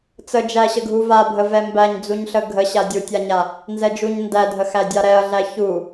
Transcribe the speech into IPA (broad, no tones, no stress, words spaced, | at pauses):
t͡səd͡ʒæɕə ɡʱuvabʱəvɛ mbæɲd͡zuɲɬə ɡʱəɕa dʲutʲaɲa | nzɛd͡ʒuɲ ndædʱəxæ dʲaɾɛɐ̯ɮæ çu